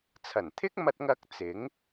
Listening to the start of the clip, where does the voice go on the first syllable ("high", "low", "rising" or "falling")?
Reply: low